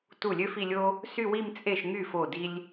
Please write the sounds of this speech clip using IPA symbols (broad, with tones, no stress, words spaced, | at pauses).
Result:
tu˥˩lʲø˥fi˥˧lʲo˥ | sy˥˧wi˥˧m t͡sʼe˥˩ʃŋy˥˩ fo˥˩di˥lʲ